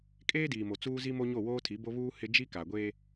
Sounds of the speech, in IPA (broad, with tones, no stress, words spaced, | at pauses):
kʼeː˦diː˨mo˨ t͡suː˦zi˦mo˦ɲo˦˨ woː˦tʰi˨˦bo˦βuː˦ hɪ˦ d͡ʒi˦ka˨ɡʷe˦